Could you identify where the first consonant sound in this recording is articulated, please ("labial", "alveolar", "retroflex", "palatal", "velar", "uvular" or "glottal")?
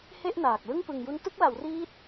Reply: glottal